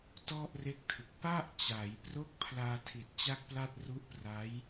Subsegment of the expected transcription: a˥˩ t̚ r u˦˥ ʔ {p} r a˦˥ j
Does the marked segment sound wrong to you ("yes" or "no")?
no